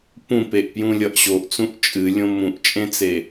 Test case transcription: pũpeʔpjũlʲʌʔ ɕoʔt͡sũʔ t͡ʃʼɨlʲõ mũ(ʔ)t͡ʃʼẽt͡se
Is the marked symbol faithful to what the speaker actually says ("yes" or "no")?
yes